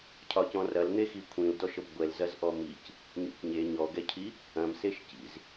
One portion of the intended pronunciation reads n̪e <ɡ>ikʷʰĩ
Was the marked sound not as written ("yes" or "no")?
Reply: yes